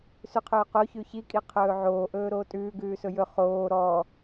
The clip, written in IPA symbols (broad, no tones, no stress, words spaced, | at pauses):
sʉqʰɵːqoçʉ çikʼi qʰɵːʕoːʔɵː ɾoːtʼʉː ɡʉːsɵjɵ χoː ɾɔ